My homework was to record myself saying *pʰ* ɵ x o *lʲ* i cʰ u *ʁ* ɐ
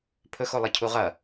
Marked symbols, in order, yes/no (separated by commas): yes, no, yes